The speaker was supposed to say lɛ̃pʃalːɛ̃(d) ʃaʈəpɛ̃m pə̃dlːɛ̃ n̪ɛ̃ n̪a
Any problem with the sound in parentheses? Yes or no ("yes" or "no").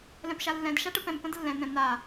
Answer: no